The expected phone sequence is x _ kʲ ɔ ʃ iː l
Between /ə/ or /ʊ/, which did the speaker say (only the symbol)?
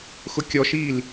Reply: ʊ